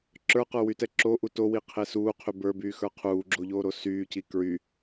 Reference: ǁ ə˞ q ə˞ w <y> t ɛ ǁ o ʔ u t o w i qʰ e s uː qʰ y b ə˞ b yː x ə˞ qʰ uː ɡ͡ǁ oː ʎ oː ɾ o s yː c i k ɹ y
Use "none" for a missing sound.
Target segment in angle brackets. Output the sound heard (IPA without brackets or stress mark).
y